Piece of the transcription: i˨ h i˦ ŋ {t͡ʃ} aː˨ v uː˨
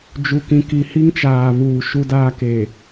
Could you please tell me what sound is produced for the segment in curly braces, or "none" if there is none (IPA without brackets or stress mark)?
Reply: t͡ʃ